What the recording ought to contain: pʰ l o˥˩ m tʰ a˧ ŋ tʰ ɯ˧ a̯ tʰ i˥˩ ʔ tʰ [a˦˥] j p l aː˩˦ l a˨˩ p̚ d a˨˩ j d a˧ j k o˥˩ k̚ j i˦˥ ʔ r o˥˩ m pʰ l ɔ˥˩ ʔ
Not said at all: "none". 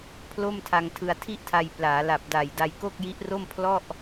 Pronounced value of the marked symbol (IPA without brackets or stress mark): a˧